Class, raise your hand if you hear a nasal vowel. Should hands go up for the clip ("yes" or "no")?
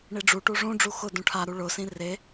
yes